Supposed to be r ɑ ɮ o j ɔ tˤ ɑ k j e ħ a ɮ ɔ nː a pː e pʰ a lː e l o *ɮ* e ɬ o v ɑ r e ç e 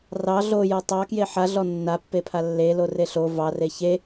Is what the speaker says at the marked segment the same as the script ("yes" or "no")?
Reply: no